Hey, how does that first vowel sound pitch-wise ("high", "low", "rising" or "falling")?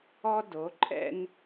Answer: high